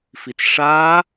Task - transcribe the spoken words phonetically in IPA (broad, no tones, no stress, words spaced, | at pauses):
fit͡sʂaː